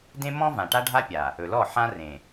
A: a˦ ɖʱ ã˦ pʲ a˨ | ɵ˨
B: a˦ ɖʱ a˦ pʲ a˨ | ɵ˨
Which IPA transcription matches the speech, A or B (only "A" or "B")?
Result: B